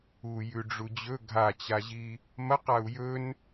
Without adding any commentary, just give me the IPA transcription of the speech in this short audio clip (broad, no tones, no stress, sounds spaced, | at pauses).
u j ʉ ɖ͡ʐ u d͡ʑ ɵ ɡʱ a t͡ɕ a ʑ i | m ɐ q a u̯ j ɵ n